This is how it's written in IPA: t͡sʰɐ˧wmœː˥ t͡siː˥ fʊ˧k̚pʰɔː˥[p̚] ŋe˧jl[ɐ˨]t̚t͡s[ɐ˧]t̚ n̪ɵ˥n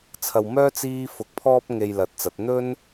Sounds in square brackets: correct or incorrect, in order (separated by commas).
correct, incorrect, incorrect